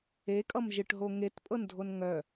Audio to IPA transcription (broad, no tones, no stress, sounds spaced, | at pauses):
e kʼ ʌ m ʒ ɨ ʈ ɦ o ŋ e t pʼ ɤ n dʱ o n ŋ œ